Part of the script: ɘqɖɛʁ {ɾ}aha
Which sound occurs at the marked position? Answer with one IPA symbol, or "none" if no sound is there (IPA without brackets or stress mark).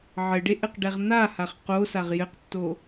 n̪